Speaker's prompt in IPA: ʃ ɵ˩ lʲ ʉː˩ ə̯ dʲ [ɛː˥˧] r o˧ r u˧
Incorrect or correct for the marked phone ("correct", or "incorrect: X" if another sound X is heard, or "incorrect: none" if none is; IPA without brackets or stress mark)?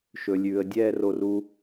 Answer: correct